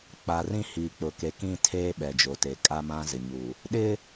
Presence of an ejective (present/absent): present